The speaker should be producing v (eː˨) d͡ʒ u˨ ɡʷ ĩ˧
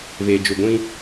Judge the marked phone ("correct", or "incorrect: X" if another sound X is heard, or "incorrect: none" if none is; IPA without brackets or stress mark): correct